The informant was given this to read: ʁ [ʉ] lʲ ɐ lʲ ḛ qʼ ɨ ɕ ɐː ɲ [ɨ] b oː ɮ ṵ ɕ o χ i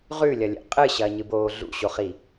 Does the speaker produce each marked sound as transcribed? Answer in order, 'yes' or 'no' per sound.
yes, yes

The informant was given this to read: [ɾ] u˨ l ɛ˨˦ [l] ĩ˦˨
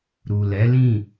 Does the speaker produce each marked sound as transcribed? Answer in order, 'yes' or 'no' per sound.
yes, yes

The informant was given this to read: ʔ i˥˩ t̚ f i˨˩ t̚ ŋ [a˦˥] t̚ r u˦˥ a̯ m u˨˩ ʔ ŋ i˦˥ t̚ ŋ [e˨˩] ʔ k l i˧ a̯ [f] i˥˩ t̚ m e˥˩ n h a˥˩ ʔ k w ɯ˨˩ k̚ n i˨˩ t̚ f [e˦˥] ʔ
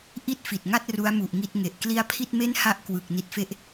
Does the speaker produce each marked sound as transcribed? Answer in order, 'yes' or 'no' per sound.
no, yes, no, yes

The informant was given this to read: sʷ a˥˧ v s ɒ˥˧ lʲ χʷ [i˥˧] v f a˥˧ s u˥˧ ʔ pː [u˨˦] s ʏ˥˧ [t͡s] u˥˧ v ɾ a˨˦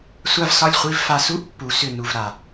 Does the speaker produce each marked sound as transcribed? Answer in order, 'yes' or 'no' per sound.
yes, yes, no

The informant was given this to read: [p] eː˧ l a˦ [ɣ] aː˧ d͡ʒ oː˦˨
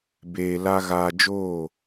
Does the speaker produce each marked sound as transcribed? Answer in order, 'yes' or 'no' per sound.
no, yes

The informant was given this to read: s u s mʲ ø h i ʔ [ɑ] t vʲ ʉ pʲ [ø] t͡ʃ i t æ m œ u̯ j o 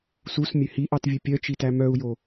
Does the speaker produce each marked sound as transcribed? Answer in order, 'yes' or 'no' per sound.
yes, no

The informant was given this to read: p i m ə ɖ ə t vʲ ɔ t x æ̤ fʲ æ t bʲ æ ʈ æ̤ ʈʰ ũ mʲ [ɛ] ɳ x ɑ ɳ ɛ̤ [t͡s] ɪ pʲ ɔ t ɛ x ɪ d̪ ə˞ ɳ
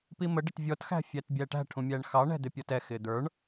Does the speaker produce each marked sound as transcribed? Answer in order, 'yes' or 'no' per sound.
no, no

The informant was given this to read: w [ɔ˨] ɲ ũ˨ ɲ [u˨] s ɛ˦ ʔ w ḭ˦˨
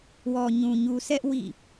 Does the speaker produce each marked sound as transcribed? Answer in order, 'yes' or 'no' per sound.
yes, yes

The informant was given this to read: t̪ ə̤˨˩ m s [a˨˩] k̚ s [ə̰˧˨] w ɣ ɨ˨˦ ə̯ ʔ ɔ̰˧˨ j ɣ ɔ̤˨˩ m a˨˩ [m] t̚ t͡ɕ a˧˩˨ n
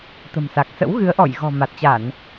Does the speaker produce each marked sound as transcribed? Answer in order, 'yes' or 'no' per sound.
yes, no, no

